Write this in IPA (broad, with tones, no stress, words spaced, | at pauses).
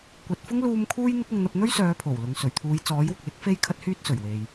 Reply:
kʷɐ˨t̚fʊ˥ŋ luː˧m kʰuː˥jn̪ɪ˥k̚ʊ˧ŋ n̪ɐ˧p̚n̪ɵ˥ɥsœː˨˧ pʰo˨˩wlʊ˨ŋ sɵ˨˩ɥt̪ʰuː˨˧j t͡sɔː˨˥jwʊ˨k̚lɪ˥k̚ fe˥jkʰɐ˥t̚hyː˥t̚sɵ˨˩ɥ we˨j